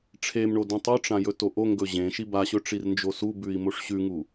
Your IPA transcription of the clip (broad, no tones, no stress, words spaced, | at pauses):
ʈ͡ʂʰemɳo dũtˤoʈ͡ʂã jɵtoʔoŋɡɵ ʑẽʃi baɕɵ ʈ͡ʂirnd͡ʒosubʉi̯ moʂɕʉŋu